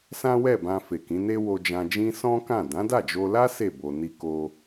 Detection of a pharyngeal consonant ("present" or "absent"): absent